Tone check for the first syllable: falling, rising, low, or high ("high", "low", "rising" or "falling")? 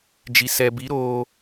low